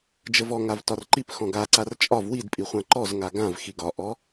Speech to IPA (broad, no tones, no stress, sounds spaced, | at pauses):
d͡ʒ ə v ɔ ŋ a v t ɒ r ǃ i p x ɔ̃ ɡ a ǀ a r t͡ʃʼ ɒ v w i d pʼ i χʷ ã ǃ ɔ z ŋ a ɡ ã v x i ɡ ɒ ʔ ɔ